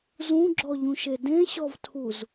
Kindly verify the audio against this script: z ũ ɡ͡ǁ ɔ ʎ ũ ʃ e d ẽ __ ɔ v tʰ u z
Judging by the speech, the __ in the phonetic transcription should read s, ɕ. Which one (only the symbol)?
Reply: ɕ